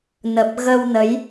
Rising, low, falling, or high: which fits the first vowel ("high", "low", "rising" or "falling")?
low